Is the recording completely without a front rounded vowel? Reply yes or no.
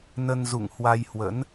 yes